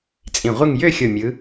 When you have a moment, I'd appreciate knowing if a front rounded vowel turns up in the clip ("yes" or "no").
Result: yes